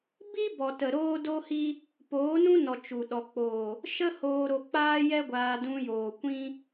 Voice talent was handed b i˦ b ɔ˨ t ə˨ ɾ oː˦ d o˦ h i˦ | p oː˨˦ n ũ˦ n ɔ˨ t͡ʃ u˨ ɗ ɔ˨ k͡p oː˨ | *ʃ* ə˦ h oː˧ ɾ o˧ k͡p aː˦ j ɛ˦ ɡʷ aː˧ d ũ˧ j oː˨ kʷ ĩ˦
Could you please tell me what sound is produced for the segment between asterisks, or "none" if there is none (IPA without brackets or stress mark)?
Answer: ʃ